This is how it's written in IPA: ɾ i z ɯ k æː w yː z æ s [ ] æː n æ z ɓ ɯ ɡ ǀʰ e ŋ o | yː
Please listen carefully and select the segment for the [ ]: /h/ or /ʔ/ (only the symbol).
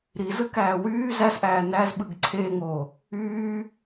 ʔ